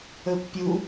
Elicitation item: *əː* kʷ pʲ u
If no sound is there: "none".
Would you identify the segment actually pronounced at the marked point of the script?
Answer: əː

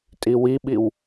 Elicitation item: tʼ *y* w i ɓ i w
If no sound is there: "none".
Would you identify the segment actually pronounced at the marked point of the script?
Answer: i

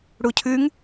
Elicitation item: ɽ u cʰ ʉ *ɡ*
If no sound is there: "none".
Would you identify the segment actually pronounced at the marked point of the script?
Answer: ŋ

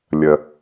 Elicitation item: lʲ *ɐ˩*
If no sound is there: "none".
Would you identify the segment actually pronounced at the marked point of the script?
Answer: ɐ˩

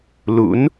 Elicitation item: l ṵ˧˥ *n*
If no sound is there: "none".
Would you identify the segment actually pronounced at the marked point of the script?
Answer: n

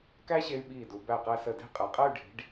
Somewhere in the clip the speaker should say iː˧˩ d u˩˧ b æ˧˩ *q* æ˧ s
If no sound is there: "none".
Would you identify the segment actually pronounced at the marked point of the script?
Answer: q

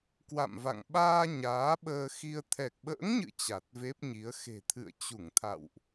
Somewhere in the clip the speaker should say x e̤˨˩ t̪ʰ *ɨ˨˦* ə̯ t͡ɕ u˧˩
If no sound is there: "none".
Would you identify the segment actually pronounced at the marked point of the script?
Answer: ɨ̰˧˨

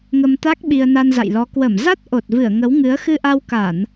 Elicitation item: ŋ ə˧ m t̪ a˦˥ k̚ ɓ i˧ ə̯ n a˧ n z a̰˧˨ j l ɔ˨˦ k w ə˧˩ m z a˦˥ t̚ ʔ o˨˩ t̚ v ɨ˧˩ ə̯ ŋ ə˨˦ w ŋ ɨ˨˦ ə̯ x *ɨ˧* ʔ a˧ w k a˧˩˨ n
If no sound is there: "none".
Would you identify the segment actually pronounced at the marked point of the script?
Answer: ɨ˧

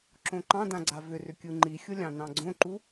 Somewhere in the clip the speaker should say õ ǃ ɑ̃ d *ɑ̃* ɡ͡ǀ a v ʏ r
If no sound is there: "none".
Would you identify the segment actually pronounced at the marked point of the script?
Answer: ã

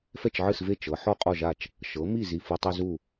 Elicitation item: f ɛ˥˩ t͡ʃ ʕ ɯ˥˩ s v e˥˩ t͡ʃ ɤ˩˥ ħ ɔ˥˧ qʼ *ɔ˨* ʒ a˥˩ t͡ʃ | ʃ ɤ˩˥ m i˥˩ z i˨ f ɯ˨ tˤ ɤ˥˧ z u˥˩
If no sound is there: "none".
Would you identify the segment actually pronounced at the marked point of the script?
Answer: ɔ˥˩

